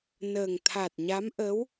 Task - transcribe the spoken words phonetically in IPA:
n əː˨˩ ŋ t̪ʰ a˨˩ t̚ ɲ a˧˥ m ʔ ə˧˥ w

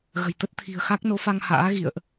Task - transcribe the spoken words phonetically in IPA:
ɣ ə̤˨˩ j t̪ ə˦˥ t̚ t̪ʰ i̤˨˩ ə̯ x a˦˥ k̚ n o˨˦ f a˧ ŋ h a̰ː˧˥ ɣ ḭ˧˨ ə̯ ʔ

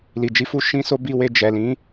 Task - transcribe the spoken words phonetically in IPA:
l i˨ d͡ʒ i˧ f u˦ ʃ ĩ˦ s o˦ b i˧ w e˧ d͡ʒ ɛ˨ l ĩ˨˦

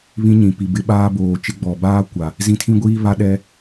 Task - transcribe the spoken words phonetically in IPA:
β ĩ˦ ɲ ĩ˨ p i˨ b ɪ˦ ɓ aː˦ b oː˨ t͡ʃ ɪ˦ ɡ͡b ɔ˨ b aː˦ kʷ a˨ | z ĩ˦ tʰ ĩ˦ ɡʷ iː˦ β a˦ ɗ ɛ˦

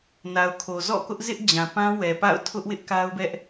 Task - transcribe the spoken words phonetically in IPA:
n a˨ ʊ̯ kʰ o˨ z ɔ̰˦˨ k ʊ˦ ʔ z ɪ˦ ʔ d͡ʑ ã˨ p ã˦ w ɛ˨ p a̰˦˨ ʊ̯ tʰ ʊ˦ ʔ w ɪ˦ ʔ k a˦ ʊ̯ b ɛ˦ ʔ

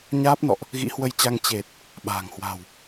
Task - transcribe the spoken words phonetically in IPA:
ɲ aː˦˥ p̚ n ɔ̰˧˨ ʔ | ɣ ḭ˧˥ h w ə˧ j t͡ɕ a˧ ŋ t͡ɕ e˨˩ t̚ | ɓ a̤ː˨˩ ŋ h w a̤˨˩ w

